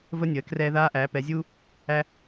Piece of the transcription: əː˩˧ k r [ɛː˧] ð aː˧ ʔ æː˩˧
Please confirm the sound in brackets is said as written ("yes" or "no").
yes